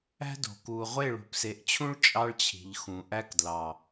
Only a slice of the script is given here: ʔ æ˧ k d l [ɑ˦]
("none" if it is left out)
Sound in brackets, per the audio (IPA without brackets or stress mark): ɑ˨